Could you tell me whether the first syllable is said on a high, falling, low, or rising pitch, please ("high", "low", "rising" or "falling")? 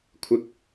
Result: low